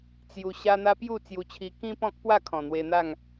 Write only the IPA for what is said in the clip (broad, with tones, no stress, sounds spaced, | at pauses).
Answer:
t͡s j u˧ ɕ a˦ n̪ a˦ p j u˥˧ t͡s j u˧ t͡ɕʰ i˧ k ĩ˦ p ɔ̃˦ k̚ p w a˥˧ kʰ ɔ̃˨˩ n̪ w e˧ n̪ a˥˧ ŋ